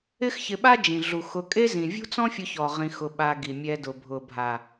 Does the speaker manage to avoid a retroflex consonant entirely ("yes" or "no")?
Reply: yes